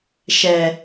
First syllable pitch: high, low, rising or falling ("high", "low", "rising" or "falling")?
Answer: low